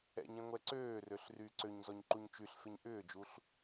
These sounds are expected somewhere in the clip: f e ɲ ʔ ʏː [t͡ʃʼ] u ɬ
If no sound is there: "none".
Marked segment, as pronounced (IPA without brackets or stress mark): d͡ʒ